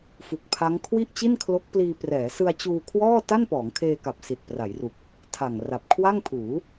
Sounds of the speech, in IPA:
f u˨˩ k̚ pʰ a˦˥ ŋ kʰ w i˥˩ ʔ t͡ɕ i˥˩ n kʰ l o˦˥ k̚ p l iː˧ p r ɛː˩˦ s ɯ˧ a̯ t͡ɕ uː˧ kʰ w ɔː˥˩ t a˥˩ n p ɔː˩˦ ŋ kʰ eː˧ k a˨˩ p̚ s i˨˩ t̚ p r a˩˦ j r u˨˩ k̚ | tʰ a˨˩ ŋ r a˨˩ p̚ kʰ w a˥˩ ŋ pʰ uː˩˦

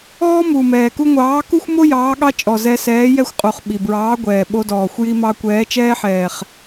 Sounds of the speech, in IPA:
ɔː˥ m u˨˩ m ɛː˨˩ k u˥ ŋʷ ɑː˨˥ k u˥ xʷ m o˥ j ɑː˨˥ ɠ ɑ˥ t͡ʃʼ ɔ˨˩ z ɛ˧ s ɛː˨˥ j ɛ˥ xʷ qʼ u˨˩ χ ɓ i˨˩ b ɹ ɑː˨˥ ɡʷ ɛː˨˩ ɓ o˧ d ɔː˨˩ xʷ j i˧ m ɑ˧ kʷ ɛː˨˥ t͡ʃ ɛː˥ ħ ɛː˨˩ χ

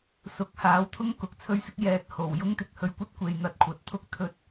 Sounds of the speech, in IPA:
s ʊ˨˥ k̚ h aː˨˥ w t̪ʰ ʊ˥ ŋ k ʊ˨ k̚ t͡sʰ ɵ˥ ɥ s ɪ˥ k̚ j ɛː˨ t̚ h o˨˩ w j ʊ˥ ŋ t̪ ɪ˧ k̚ h ɵ˧ ɥ kʷ ɐ˥ t̚ kʷ e˨ j n̪ ɐ˧ t̚ kʷʰ ɐ˨˥ t̚ t̪ʰ ʊ˥ k̚ t̪ʰ ɵ˧ t̚

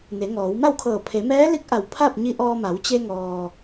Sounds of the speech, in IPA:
n e˩˧ ŋ ɔː˩˧ w m a˥˨ w kʰ ɤː˧˩ pʰ e˩˧ m ɛː˧˥ l i˧˥ k̚ ʔ a˧˩ w pʰ a˥˨ p̚ ɲ i˧ ʔ ɔː˧ m a˩˧ w t͡ɕ e˧ ŋ ɔː˩

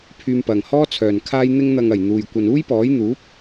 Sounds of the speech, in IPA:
pʰ yː˧ m p ɐ˨ ŋ h ɔː˥ t͡sʰ œː˨ n kʰ aː˧ j n̪ ɪ˧ ŋ n̪ ɐ˨ ŋ ɐ˨˩ j n̪ uː˨ j kʷ ɐ˨ n uː˥ j p ɔː˨˥ j n̪ uː˨˥ p̚

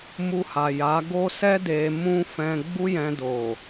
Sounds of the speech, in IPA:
m u˧ h a˨ j a˨˦ ɡ o˦ s ɛ˦ d e˧ m ũ˦ f ɛ̃˧ ɡ͡b u˦ j ɛ̃˧ d o˨

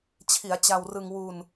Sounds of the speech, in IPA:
t͡ɕʰ i˩˦ a̯ t͡ɕ a˧ w r ɯ˧ ŋ w u˧ n

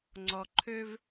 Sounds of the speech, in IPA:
ŋ͡ǀ ɔ˨ ǃʰ ø˦ v

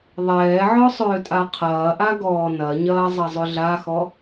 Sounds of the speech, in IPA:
ðˤ ɛː ʕ ɔ sˤ ʏː tʼ a qʰ ɐː ʔ a ɡ ɔː n ɐ ɲ ɐː zˤ ɐ zˤ ʏ ɮ a x ɔ

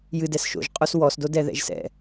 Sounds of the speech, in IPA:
j ɨ d ɛ s ʃ o̰ ʒ qʼ o s w ɔ s d o d ɛ ð ɛ̰ ʒ s ɛ̰

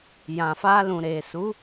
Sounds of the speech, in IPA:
j ã˨ f a˧ l ũ˨ ɾ e˨ s u˨˦

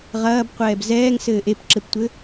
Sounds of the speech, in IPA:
ʁ ɐː b qʷ ɛː b z ɛː ŋ s ɘː ʔ e p ǁ ɘ p tʷ ɘ

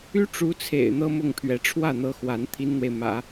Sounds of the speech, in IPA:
y˥ ʈ͡ʂ u˧˥ t͡sʰ ḛ˨˩ ɪ̯ n̪ ɤ˥ m ʊ˥˩ ŋ pʰ ɥ ɛ˧˥ ʈ͡ʂʰ w ä˥˩ n̪ ɤ˧˥ x w a˧˥ n t̪ʰ i˥ n n̪ w e˨ ɪ̯ m ä̰˨˩˦

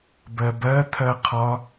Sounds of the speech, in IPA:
b ɜ b ɜ t̪ʰ ɜ qʰ ɒ

